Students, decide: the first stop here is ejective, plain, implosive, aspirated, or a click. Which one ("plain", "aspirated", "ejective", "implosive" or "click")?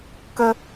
plain